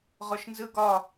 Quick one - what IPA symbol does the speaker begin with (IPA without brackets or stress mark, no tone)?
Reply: ʁ